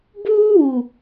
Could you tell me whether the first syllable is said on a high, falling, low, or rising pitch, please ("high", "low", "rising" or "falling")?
high